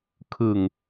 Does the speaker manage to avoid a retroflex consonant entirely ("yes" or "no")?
yes